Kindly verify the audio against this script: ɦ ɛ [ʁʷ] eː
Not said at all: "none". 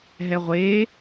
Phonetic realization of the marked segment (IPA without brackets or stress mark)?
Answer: ʁʷ